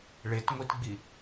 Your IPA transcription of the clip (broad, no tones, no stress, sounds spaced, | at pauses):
ɭ e t ŋʷ i t ɡ͡b i